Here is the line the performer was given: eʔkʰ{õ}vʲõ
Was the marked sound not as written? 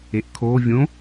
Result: yes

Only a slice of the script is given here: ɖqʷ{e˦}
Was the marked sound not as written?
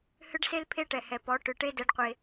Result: no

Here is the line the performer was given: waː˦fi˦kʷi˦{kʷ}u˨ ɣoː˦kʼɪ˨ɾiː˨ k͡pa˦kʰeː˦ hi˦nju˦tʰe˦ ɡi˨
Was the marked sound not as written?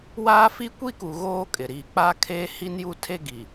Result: yes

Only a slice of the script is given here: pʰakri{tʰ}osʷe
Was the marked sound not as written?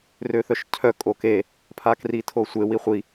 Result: no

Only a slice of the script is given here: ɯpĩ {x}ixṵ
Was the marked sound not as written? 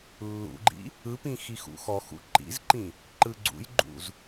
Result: no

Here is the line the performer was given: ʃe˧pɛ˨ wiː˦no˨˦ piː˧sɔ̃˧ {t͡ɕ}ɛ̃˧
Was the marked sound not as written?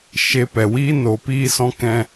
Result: yes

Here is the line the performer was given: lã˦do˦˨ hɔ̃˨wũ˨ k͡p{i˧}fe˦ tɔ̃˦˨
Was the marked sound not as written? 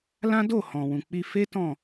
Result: no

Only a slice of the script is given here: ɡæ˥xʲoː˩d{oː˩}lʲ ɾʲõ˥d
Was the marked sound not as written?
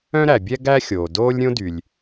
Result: yes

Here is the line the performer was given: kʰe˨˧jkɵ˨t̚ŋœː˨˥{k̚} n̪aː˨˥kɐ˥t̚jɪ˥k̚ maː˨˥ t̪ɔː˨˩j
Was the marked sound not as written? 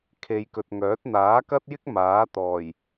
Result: yes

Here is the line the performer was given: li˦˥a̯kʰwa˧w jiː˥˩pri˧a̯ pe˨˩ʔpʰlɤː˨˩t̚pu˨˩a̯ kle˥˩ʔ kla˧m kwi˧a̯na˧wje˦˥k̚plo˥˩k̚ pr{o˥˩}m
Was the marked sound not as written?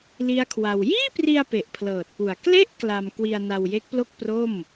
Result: no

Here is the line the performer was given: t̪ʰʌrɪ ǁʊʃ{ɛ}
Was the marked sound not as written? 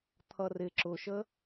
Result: yes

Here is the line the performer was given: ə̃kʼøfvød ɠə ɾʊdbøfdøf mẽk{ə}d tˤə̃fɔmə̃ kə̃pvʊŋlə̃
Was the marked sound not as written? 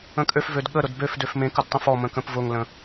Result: no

